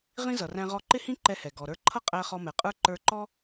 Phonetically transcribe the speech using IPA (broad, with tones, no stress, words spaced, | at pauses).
ʁĩ˥zʌ˩ræ̃˧ ʁɔ˧ǃɪ˥hĩ˥ ǃɛ˧hɛ˩ ɡɔ˩ɾə˞˧ǃʰʌ˥qʼæ˧ χɔ˧mɛ˩qʼə˞˥ ǃə˞˧ǃɔ˥